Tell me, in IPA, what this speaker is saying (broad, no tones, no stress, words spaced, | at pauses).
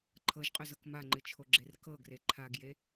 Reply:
ǃʰɤʒqʼʏzɤk maŋ͡ǃɨt͡ʃʰoɡ͡ǁer kɤɡre ǃʰaɡje